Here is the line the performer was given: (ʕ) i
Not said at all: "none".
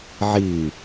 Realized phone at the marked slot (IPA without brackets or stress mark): ʕ